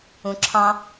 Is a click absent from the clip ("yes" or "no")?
no